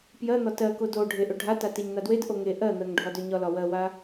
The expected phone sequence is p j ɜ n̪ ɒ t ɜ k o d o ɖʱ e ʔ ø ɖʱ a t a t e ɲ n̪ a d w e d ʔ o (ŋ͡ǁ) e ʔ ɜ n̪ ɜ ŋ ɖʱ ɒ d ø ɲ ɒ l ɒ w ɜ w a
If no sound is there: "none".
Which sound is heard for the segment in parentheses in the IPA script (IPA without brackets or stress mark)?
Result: ŋ